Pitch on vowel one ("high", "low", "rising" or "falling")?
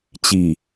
low